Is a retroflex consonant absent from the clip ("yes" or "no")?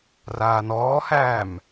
yes